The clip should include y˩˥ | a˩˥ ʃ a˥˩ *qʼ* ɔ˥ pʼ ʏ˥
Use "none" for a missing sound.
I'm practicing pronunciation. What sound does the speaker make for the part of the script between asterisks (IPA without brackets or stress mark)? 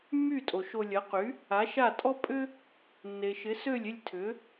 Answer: tʼ